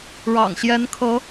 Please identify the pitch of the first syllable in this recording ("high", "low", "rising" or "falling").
low